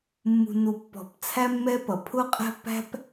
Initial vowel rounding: rounded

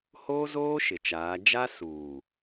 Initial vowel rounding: rounded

